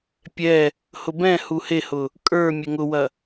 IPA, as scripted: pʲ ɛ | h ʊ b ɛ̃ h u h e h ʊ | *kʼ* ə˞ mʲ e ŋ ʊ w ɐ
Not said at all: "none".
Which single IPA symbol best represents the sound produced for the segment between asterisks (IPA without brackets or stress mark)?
kʼ